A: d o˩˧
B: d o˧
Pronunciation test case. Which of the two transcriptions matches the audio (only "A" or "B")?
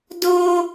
B